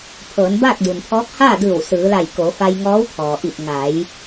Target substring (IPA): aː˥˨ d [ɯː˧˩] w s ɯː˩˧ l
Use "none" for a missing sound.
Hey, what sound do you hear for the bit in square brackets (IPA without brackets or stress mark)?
ɯː˧˩